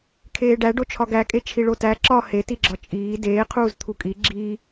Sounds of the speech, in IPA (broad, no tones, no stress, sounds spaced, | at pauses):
kʰ eː ɖ æ ɖ o t͡ʃʰ ɒ ɡ æ kʼ e t͡ʃʰ i ɭ o t æ ǁ ɒ h e t i ɡ͡ǁ ɒ t͡ʃʼ iː d eː qʰ uː z t̪ʰ u kʼ i ɡ͡ǁ iː